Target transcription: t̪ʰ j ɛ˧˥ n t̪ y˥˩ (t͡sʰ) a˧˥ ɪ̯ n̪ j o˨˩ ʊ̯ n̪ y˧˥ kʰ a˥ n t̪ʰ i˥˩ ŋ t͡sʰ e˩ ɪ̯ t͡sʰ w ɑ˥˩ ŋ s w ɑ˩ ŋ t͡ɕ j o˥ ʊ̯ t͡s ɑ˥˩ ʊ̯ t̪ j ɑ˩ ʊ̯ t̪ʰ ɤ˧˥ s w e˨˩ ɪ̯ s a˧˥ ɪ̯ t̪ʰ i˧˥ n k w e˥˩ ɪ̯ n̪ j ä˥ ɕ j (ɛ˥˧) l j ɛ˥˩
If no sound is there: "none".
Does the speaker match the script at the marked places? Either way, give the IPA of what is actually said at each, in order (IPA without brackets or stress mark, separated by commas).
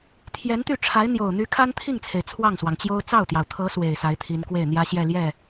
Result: ʈ͡ʂʰ, ɛ˥˧